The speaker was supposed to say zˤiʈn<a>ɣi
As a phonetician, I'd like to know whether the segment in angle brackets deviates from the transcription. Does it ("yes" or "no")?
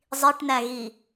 yes